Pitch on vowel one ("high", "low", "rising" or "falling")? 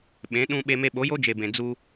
rising